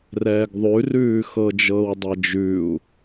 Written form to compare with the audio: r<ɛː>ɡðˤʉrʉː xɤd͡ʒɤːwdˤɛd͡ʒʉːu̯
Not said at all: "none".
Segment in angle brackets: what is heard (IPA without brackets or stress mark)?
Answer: ɛː